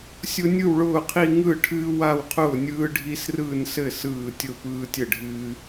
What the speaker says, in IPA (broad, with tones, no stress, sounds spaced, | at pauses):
sʲ ʊ˦ nʲ ɯ˥˩ w ɭ ʊː˥˩ qʰ i˦ ŋ ɯ˥˩ ʈʰ ɨː˦ w a˥˩ w qʰ ʊː˥˩ nʲ ɯː˦ ɖʱ i˦ s r ɯː˥˩ n s ɘ˥˩ s ɯː˥˩ tʲ ʊ˥˩ p ɯː˦ tʲ ɘ˥˩ ɖʱ ɨː˦